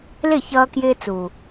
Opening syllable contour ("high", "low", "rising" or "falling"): falling